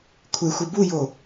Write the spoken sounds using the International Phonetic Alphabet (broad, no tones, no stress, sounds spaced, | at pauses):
kʷʰ ɪ xʷ ɪ b u j o